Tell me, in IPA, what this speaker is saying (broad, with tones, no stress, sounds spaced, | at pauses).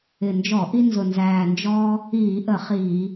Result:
ɪ˨˩ n d͡ʒ ɔ˧˩˧ ʔ i˦ n z ʊ˨˩ n z æː˨˩ n d͡ʒ ɔː˦ | iː˧˩˧ ʔ ə˧˩˧ χ iː˧˩˧